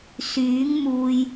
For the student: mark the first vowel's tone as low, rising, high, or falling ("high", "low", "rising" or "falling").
rising